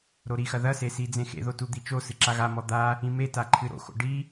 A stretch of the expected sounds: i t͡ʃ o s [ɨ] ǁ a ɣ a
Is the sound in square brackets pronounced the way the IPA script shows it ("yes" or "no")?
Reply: yes